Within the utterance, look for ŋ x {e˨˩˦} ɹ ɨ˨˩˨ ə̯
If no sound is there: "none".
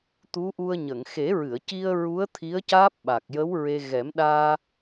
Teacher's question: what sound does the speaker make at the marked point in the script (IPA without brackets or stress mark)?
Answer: e˨˩˦